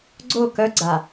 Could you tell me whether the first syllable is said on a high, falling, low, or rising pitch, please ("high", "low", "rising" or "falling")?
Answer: falling